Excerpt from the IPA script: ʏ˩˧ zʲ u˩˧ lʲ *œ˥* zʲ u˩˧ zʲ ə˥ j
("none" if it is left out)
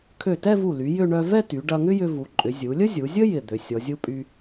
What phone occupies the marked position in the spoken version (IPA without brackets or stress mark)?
ə˥